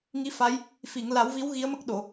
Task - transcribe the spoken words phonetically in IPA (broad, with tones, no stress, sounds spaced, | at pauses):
ŋ i˧˥ f a˧˥ j | f i˨˩˨ ŋ l a˨˩˦ w v i˧˥ w ɣ i˧˥ ə̯ m ə˦˥ k̚ ɗ o˨˩˨